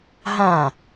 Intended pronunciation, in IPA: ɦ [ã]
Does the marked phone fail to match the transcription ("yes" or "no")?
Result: no